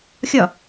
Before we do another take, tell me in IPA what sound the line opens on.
xʲ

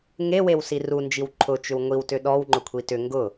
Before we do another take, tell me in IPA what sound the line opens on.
ŋ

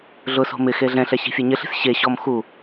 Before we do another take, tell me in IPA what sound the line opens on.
ɮ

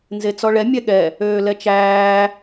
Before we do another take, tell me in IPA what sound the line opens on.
n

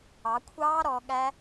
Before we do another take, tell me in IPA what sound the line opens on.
ɑ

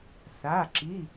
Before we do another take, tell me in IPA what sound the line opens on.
θ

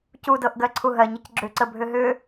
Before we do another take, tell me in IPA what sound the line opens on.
c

